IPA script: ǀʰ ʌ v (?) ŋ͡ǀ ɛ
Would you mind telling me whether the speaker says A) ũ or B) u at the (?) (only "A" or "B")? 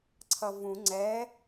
A